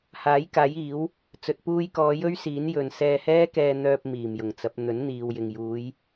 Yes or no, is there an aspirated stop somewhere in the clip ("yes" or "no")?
no